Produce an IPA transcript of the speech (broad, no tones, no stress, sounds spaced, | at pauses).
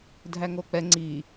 dʱ æ ŋ o k͡p ɛ ŋ͡ǀ i